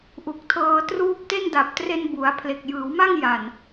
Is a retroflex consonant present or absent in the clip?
absent